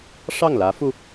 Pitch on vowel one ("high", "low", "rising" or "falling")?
falling